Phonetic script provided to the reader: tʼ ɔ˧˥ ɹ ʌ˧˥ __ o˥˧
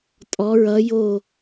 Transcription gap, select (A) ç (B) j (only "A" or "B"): B